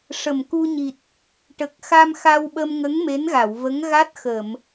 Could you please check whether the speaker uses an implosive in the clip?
yes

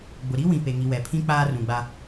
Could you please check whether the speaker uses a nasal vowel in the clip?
yes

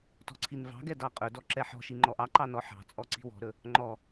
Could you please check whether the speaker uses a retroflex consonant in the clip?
no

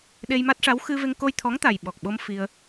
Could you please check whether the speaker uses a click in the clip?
no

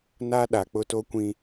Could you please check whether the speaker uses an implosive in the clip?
yes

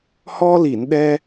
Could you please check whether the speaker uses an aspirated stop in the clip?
no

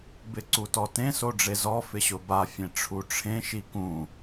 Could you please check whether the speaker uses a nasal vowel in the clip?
yes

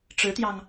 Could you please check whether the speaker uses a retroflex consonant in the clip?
yes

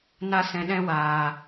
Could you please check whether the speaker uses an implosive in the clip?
yes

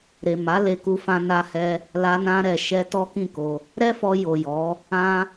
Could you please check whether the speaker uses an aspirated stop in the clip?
no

